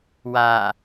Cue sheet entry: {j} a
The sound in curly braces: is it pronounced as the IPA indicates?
no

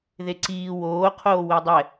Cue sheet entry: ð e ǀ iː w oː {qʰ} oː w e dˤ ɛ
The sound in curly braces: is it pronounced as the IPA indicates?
yes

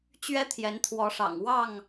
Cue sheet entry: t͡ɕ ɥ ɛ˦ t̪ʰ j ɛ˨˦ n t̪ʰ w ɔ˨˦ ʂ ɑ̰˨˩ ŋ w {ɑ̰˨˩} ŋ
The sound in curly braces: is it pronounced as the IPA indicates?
no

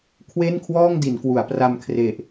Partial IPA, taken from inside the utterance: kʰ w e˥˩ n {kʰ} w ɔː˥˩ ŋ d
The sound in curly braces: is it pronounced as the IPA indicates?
yes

